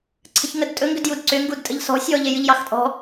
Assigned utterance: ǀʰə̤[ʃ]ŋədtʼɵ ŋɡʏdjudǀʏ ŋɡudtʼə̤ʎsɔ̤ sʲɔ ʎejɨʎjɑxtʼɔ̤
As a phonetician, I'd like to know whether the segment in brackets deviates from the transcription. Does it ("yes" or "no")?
yes